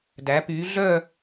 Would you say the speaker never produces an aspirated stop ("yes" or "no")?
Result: yes